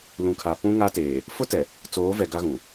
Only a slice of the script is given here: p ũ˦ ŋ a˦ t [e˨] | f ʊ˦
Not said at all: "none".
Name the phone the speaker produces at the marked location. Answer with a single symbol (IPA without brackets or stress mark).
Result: e˨